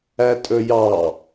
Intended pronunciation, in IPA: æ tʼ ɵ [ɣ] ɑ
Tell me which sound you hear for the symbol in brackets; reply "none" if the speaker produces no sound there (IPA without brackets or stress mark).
j